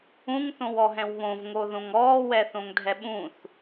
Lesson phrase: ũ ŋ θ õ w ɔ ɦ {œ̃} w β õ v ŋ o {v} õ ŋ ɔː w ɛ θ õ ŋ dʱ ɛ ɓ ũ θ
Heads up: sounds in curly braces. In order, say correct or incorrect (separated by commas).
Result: incorrect, incorrect